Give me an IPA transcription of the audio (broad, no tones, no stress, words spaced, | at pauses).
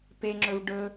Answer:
peŋ͡ǁɵv ɖɵ